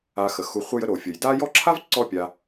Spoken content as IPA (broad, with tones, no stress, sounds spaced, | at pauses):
a˨ x ə˩ x u˨ χʷ ə˦ j ə˥ ɾ o˩ fʲ ə˩ j d a˥ j ɔ˦ ǁʰ a˥ v ǀ ɔ˦ pʲ a˨